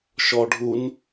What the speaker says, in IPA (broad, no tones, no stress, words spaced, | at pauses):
ʃɔɖʱun